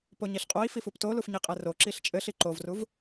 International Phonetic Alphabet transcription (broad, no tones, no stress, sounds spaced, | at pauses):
p o ɲ i ɬ qʼ o i̯ f i f u p t o l u f ɲ i qʼ ɛ r o ǁ i ɬ t͡ʃʼ ɘ ɬ i ǃ o v r u v